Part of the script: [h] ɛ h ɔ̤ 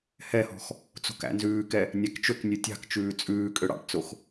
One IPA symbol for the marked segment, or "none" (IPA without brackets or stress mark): h